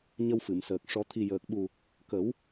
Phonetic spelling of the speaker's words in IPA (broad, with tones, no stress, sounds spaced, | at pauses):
ɲ ə˧ w f ɨ˨˩˨ m s əː˨˩ k̚ ʂ ɔ˨˩˦ t̪ʰ i˨˩ j əː˨˩ k̚ ɓ u˨˩ | k ə˨˩˦ w